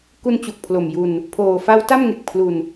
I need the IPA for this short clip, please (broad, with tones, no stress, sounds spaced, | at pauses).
k u˧ n t͡ɕ u˨˩ k̚ pʰ l o˨˩ m j u˧ n | pʰ oː˨˩ f a˦˥ w t a˥˩ m ŋ e˨˩ k̚ pʰ l u˧ n